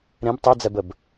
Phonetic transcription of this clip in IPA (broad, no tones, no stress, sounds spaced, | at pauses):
ɾ ẽ b tˤ i d͡z ɛ b ə b